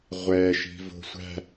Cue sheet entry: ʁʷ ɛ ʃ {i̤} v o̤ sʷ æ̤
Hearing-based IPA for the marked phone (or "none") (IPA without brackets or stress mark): i̤